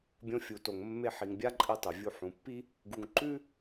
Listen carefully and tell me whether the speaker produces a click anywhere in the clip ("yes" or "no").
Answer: yes